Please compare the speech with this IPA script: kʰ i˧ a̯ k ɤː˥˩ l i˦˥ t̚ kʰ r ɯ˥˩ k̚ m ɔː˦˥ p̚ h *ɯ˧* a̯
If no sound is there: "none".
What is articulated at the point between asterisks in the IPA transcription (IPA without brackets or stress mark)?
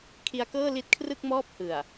ɯ˨˩